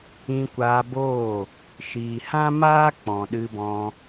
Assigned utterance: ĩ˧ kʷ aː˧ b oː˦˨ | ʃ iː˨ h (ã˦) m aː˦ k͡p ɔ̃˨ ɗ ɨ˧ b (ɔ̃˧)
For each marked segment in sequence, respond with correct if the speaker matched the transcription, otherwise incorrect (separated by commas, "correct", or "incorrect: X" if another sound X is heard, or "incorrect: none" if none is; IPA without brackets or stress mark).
correct, correct